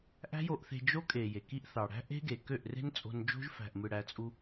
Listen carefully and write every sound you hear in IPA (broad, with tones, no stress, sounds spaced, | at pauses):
ʔ æ̤˦ j o˧ ʔ θ e̤˧ d͡ʒ o˦ kʼ e˨ j e˨ k i˦ ʔ θ ɑ˨ ɽ æ̤˦ ʔ e̤˦ ɡ e˨ k ø˦˨ ʔ r e̤˦ n t͡sʼ o̤˧ n d͡ʒ o̤˦ ʒ f æ̤˨ ʔ m ɯ˨ ɽ æ˧ t͡sʼ u˧